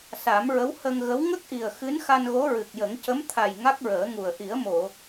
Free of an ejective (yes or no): yes